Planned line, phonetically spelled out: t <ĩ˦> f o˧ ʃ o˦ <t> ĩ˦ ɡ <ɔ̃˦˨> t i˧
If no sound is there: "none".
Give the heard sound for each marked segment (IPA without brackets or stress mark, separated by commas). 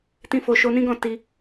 ĩ˦, n, ɔ̃˦˨